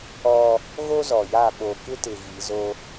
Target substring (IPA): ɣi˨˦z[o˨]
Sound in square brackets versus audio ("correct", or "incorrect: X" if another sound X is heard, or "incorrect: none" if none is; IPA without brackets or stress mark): incorrect: o˦